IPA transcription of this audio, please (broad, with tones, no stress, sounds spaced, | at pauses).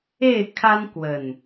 e˥˨ ɪ̯ kʰ a˦ n k w ə˨˩ n